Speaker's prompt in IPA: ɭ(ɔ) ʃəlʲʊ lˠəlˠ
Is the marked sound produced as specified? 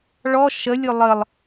yes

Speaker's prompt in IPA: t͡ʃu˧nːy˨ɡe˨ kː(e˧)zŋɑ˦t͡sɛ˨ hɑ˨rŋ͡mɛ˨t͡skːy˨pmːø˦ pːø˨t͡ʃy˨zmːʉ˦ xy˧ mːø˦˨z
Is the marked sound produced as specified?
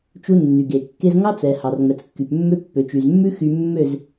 yes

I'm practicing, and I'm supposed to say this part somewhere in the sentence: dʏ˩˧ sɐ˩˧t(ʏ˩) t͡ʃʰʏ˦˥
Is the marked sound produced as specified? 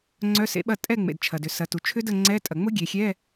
no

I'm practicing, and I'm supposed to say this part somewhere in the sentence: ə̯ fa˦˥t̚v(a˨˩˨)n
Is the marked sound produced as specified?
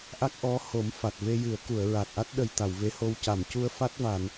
yes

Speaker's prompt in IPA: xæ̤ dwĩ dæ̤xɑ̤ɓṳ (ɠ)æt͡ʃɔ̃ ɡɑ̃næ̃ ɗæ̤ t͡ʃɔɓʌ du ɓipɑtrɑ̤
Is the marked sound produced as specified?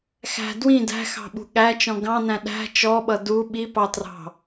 yes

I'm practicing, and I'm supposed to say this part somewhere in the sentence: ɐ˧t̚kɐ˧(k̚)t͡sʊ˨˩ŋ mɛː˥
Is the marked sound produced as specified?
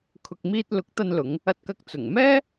yes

